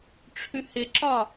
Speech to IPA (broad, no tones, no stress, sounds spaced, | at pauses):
ʈ͡ʂʰ ʉ h ɪ ǁ ɒ